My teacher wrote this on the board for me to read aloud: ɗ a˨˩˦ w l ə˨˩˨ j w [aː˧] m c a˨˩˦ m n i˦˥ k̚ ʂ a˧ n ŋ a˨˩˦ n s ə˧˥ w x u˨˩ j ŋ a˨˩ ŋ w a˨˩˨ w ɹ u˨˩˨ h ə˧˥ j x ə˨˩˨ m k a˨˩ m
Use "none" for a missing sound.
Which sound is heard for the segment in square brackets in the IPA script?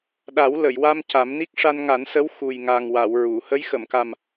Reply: a˧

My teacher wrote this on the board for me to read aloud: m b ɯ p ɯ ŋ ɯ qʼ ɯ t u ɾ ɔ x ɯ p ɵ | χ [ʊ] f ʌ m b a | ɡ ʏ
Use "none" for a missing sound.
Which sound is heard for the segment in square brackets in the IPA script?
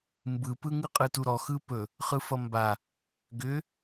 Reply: ɯ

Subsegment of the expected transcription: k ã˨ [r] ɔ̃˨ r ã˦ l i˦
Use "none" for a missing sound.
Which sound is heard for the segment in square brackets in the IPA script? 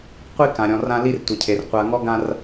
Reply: ɾʲ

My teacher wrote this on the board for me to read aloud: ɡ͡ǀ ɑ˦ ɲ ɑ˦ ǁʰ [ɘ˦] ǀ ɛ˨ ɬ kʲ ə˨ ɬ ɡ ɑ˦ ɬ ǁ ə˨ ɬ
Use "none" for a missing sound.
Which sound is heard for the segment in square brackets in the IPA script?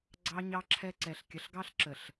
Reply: ɛ˦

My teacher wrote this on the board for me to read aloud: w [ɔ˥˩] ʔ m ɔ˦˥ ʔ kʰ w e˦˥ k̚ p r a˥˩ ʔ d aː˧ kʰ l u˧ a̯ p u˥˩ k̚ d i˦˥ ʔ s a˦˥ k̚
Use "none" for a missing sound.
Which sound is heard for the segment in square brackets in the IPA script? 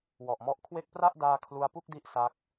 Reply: ɔ˨˩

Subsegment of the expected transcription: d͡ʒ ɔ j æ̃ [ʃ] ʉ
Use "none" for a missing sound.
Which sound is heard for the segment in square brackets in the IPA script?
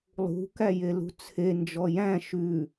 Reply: ʃ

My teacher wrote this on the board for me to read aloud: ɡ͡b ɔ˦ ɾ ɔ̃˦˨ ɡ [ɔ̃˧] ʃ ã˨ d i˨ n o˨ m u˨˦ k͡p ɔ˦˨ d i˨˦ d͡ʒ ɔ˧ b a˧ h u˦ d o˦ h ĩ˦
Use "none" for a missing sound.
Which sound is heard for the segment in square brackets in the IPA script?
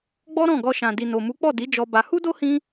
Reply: ɔ˧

